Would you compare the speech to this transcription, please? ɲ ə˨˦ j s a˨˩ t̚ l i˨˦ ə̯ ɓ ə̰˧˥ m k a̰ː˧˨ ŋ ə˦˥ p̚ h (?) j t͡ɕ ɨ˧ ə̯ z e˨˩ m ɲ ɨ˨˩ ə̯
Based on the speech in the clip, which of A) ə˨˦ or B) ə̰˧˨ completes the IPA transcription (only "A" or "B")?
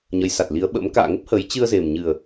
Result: A